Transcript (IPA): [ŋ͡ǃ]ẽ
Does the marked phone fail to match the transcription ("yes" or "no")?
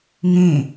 yes